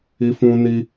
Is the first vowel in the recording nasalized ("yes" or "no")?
no